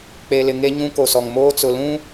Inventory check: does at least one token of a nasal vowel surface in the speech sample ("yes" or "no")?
yes